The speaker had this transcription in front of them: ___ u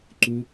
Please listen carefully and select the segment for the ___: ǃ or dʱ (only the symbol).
ǃ